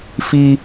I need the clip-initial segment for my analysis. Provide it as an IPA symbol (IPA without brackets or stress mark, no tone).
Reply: f